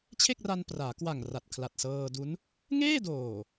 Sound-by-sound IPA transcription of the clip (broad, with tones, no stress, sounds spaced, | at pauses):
t͡ɕʰ e˥˩ k̚ r a˧ n p r aː˩˦ k w a˨˩ ŋ r a˨˩ t̚ kʰ l a˨˩ t̚ s ɤː˧ d u˦˥ n | ŋ eː˥˩ d oː˨˩